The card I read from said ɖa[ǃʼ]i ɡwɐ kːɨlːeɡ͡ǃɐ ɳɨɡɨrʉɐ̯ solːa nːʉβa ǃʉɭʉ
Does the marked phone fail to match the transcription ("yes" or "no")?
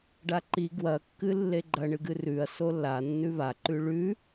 yes